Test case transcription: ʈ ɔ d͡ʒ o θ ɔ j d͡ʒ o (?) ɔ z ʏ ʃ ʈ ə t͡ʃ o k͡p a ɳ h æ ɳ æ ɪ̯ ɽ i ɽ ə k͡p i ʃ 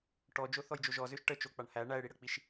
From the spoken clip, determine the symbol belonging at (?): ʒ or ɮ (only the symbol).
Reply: ʒ